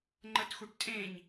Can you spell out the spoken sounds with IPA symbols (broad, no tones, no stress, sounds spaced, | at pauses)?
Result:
ŋ͡ǃ ə t x u ʈ tʼ ẽ ɲ